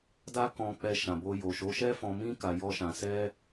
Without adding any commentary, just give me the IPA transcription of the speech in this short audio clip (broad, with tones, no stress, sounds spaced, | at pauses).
d a˦ k ɔ̃˧ k͡p ɛ˧ ʃ ã˨ b o˧ j o˨ ʃ o˨˦ ʃ ɛ˦ f ɔ̃˧ m ĩ˦ k a˧ j ɔ˦ ʃ ã˧ s ɛ˦